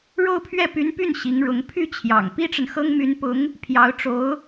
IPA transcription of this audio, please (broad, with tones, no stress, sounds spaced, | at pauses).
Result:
ɻ o˥˧ ʊ̯ pʰ ɥ ɛ˥˩ p y˧˥ n p y˥˩ n ɕ i˧˥ ŋ ɻ ʊ˧˥ ŋ pʰ y˥˩ t͡ɕʰ j ɑ̰˨˩ ŋ p i˥ ʈ͡ʂ ə˨ n x ɤ˥ ŋ m y˧˥ n p ʊ˧˥ ŋ | pʰ j ɑ˧˥ ʊ̯ ʈ͡ʂ o˧˥ ʊ̯